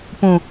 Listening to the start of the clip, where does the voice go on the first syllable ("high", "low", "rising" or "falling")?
low